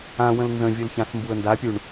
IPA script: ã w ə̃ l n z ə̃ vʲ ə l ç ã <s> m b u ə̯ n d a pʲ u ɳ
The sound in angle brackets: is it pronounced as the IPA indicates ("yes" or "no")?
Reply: yes